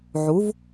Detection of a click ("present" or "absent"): absent